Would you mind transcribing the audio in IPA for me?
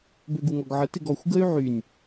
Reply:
b ø ɡ u ŋ ɔ ɡ ʕ ə t ɪ ɡ ɔ xʷ ɡ ə y̯ ʕ y nʲ

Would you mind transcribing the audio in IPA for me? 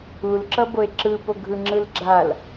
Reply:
u l ǁ ʌ b o e̯ ǁ ɯ p o ɡʱ ɯ ŋ͡ǁ ɯ l ɡ͡ǁ a l

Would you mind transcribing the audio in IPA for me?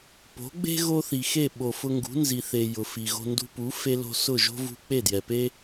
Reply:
p o̤˩˥ ɡ͡b e̤˥ ɣ o˥ θ i˩ x e˥˩ ɓ o˩ f ʊ˧ ŋ ɡ ṳ˩˥ n z i˩ θ e˩ j ʊ˩ f i˩ ɣ o̤˧ n d ṳ˧ p u˩˥ f e˧ l o̤˧ s ʊ˥˩ ʒ o̤˥ v ṳ˧ k͡p e˥˩ d j ɛ˩ p e˥

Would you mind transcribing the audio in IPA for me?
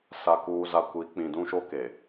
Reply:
s a˨ k uː˨ z a˨ kʷ i˨˦ k͡p ĩ˨ d ũ˦ ʃ o˦ k e˨

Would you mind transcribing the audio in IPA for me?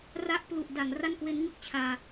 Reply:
r a˥˩ ʔ p l u˨˩ ʔ d a˩˦ ŋ r a˥˩ n k w e˦˥ n ŋ ɯ˥˩ k̚ t͡ɕʰ aː˧

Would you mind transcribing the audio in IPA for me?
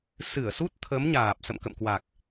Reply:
s ɨ˧˩ ə̯ s u˦˥ t̚ t̪ʰ ə˨˦ m ɲ aː˨˩ p̚ s ə̰˧˨ m k ə̰˧˨ m k w a˨˩ k̚

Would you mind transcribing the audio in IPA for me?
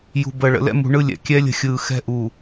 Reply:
j ṳ˨ b ə˨ ɭ ə̰˨ l ɛ̰˦ m ṳ˨ ɳ ɯ˦ lʲ ɛ̰˨ kʲ ɛː˦ lʲ ə̤˨ xʲ ɯː˨ x ɛ̤˦ ʔ u˨

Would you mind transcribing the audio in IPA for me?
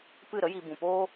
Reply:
p ɨ˦˨ ɾ ə˦ j i˧ b ũ˨ p oː˦

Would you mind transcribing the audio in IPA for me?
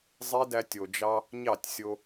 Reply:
zˤ e˦ d æ˧ tʲ o˨ d͡ʒ ɑ˧ | ɲ ɑ˦˨ tʲ sʲ o˧

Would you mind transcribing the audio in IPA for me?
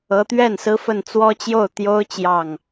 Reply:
ɤ˧˥ t̪ ɥ ɛ˥˩ n s ɹ̩˥ f ə˥˩ n t͡s w ɔ˥ t͡ɕ j o˥˩ ʊ̯ t̪ j o˥ ʊ̯ t͡ɕ j ɑ˥˩ ŋ

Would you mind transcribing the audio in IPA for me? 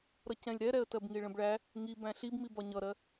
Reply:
ɾ ʌ c ɛ̃ lʲ ɾ ɛ ɾ ɛ ə̯ t ɜ b ŋ i ɭ ə̃ b ɭ æ | ŋ i b æ̃ ɬ i b m i b ɒ ɲ ʌ ɾ ɜ

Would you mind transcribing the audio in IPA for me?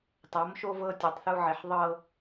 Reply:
tˤ ɤ˨˦ m ʃ o˦ v ɤ˦ tʲ o˨ tˤ θ u˦ ʕ e˨ ħ ðˤ ɤ˦

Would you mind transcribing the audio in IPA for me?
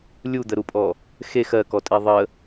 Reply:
lʲ u d̪ ə ɾ u pʼ ɔ | x e x ɜ k ɔ tʼ e ðˤ ə

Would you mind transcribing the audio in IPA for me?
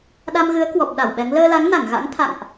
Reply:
ɗ a˧ m ɣ ɨ˨˦ ə̯ k w ɔ˨˩ p̚ ɗ a˧˩ w ɓ ɛ˨˦ ŋ l əː˧ l a˨˦ ŋ n a˧˩ ŋ ɣ a̰˧˥ ŋ t̪ʰ a̰˧˨ ŋ ʔ

